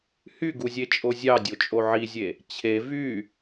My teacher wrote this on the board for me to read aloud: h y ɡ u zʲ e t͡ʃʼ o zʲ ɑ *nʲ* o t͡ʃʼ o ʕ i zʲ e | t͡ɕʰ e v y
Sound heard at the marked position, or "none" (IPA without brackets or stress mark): dʲ